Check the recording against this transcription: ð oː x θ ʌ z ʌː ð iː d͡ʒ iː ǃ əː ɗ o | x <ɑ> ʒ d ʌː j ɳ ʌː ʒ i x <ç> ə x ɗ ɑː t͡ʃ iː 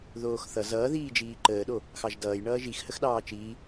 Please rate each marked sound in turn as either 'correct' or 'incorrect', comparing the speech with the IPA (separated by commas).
correct, incorrect